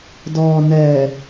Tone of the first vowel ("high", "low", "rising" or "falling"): low